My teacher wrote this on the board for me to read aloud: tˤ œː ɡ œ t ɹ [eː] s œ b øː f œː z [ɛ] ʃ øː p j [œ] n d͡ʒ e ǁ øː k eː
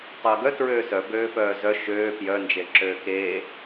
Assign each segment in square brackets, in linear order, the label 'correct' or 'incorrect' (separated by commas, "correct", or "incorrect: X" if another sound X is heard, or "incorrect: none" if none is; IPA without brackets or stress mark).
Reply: incorrect: øː, incorrect: œ, correct